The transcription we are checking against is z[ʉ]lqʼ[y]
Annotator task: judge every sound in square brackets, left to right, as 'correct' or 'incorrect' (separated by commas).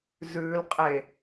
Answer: correct, incorrect